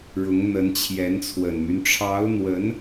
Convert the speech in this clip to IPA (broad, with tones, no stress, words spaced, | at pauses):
ɻʊ˧˥ŋn̪ə˧˥n t͡ɕʰjɛ˧˥nt͡sʰwə˨˩nmy˦n ʈ͡ʂʰɑ˧˥ʊ̯n̪wə˧˥n